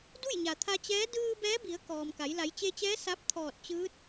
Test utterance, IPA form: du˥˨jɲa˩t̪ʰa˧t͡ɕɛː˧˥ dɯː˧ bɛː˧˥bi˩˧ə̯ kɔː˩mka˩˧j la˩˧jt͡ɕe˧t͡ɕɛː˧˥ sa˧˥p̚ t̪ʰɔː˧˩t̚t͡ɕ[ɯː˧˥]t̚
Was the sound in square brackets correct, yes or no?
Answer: yes